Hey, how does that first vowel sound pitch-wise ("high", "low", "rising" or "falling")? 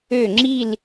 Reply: falling